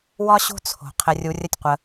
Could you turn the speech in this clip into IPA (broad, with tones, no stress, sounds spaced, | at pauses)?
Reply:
w ɒ˦ ɕ o̤˦ t͡sʰ o̤˨ qʰ ɘ˧ rʲ u˧ rʲ ə˦ tʲ qʷ ə˧